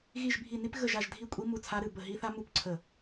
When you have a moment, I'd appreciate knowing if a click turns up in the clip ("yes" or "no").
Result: yes